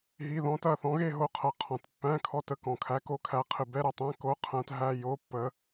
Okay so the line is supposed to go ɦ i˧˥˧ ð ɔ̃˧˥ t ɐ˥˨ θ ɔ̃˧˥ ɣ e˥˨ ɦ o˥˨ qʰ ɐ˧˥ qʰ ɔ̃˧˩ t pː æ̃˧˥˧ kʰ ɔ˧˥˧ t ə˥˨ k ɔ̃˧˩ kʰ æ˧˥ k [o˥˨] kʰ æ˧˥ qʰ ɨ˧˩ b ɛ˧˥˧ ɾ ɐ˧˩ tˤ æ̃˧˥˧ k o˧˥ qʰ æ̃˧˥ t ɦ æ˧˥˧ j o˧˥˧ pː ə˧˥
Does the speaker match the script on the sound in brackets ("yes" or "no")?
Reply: no